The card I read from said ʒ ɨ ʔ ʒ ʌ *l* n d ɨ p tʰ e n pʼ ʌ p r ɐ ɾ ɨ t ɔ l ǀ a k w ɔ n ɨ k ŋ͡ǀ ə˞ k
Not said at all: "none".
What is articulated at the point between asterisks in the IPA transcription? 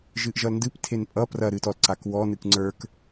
l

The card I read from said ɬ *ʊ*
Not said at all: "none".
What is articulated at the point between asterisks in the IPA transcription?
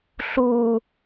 u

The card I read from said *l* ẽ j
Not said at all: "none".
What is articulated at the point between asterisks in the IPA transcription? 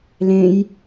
l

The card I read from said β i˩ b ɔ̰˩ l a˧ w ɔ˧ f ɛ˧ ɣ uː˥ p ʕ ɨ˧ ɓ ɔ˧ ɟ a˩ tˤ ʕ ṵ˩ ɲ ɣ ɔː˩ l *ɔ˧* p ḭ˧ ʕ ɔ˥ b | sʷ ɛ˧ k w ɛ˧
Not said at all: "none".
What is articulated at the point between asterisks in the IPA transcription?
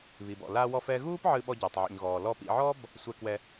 ɔ˧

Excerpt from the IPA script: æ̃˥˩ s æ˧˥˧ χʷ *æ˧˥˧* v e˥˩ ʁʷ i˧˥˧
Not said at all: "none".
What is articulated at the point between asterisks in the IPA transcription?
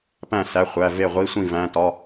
æ˧˥˧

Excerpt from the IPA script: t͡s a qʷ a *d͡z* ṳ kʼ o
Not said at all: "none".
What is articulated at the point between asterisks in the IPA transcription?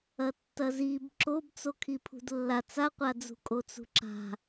d͡z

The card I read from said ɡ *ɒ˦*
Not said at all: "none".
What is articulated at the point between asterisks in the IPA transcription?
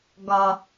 ɒ˦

